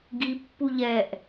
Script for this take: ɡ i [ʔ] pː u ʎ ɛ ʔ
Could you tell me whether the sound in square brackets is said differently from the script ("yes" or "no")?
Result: yes